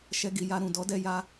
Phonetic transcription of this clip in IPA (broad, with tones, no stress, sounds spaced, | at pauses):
ʃ ɛ˧ ɡ i˨ j a˧ ɾ ũ˨ d ɔ˨˦ d ɛ˧ j a˧